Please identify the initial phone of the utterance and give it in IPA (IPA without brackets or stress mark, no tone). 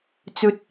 t͡s